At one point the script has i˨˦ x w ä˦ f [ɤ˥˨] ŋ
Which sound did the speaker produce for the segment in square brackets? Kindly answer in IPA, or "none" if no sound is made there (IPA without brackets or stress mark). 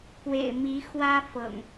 ɤ̰˨˩